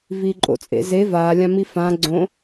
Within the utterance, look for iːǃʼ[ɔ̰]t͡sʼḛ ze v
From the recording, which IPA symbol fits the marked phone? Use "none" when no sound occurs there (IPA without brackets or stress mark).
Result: o̰